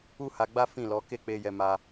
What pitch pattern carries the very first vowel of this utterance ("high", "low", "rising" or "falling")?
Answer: high